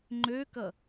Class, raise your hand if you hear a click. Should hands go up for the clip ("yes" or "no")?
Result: yes